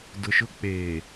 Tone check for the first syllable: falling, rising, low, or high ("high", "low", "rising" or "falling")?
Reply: low